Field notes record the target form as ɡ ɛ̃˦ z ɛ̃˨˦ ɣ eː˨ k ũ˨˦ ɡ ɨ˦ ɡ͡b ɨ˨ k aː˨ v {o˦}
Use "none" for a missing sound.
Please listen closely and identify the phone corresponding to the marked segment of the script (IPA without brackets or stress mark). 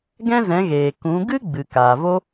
o˦